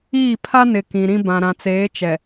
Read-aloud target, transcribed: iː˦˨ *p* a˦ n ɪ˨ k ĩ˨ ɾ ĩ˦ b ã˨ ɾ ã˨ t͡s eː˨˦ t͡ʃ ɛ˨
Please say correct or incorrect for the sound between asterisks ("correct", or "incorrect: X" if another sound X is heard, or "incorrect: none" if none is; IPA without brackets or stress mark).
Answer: incorrect: pʰ